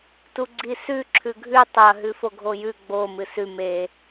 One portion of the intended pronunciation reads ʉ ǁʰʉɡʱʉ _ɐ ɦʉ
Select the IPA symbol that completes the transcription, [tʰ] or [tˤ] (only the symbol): tˤ